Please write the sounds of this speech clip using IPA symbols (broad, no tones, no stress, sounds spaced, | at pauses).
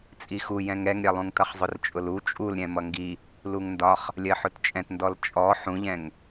t͡sʼ i x u j ɛ̃ ŋ ɛ ŋ ɾʲ ɛ lˠ ũ ŋ t ʌ χ zˤ ʊ r t͡ʃʼ ʊ l u t͡ʃʼ u l ɾʲ ɛ̃ m ʌ ŋ ɡ i | l u ŋ n d ɒ χ | lʲ ɜ ħ ʊ t t͡ʃʼ ɛ̃ t n d ɔ l t͡ʃʼ ɔ ħ ũ ʎ ɛ̃ ŋ